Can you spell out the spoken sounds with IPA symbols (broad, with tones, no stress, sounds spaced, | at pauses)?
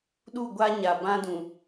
ɗ u˦˨ ɡʷ a˦ ɲ a˨ b ã˦ d ũ˨